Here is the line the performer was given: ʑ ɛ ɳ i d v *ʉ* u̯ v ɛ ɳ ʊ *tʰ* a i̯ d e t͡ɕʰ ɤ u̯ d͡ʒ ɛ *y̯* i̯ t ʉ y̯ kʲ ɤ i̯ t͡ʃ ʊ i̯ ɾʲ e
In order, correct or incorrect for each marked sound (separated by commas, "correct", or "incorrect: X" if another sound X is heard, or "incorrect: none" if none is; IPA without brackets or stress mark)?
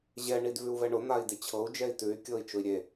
correct, incorrect: n̪, incorrect: none